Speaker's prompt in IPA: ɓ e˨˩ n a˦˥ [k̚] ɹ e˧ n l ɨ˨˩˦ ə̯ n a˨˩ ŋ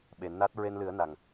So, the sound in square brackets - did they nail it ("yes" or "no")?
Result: no